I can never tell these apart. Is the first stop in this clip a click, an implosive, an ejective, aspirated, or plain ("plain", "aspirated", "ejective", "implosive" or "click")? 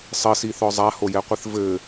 plain